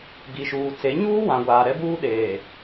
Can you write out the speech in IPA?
ɡ i˨ ʃ uː˨ t͡s e˨˦ ɲ uː˦ w ã˨ ɡʷ aː˨ ɾ ɛ˦ b uː˦ ɗ eː˨

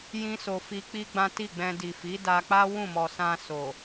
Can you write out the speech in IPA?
j ĩ˦ s o˧ f i˧ k͡p i˦ ɡ͡b ã˦ t i˦˨ ɡ͡b ɛ̃˧ d i˨ f i˨˦ d a˧ k͡p a˦ w ũ˦˨ m ɔ˨ s ã˧ s o˨

